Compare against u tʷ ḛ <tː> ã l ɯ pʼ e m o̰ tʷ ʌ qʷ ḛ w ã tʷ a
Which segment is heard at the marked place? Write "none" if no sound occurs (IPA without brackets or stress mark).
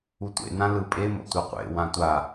n